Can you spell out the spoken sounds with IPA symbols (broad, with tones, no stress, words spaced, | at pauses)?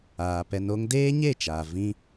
aː˨ pɛ˧no˦ŋ deː˦ɲe˦˨t͡ʃaː˨ vĩ˦